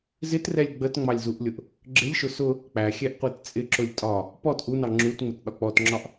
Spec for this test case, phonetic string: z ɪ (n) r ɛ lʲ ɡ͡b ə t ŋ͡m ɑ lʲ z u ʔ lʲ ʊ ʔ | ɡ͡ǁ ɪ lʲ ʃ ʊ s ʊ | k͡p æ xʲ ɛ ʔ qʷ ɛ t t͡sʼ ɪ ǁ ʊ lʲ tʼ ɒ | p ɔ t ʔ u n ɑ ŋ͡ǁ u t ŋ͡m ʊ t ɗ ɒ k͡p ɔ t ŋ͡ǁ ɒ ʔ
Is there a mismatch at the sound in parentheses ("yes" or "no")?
yes